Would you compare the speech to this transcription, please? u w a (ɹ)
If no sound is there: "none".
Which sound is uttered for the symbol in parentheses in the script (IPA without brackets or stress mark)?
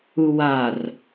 r